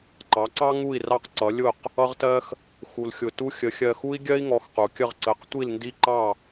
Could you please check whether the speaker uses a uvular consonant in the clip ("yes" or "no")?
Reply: yes